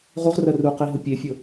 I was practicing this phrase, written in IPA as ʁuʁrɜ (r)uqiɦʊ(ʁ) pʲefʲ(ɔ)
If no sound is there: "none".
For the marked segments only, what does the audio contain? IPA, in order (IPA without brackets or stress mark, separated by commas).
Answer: r, none, ʊ